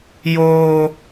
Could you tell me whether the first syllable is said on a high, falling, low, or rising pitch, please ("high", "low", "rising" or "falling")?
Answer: high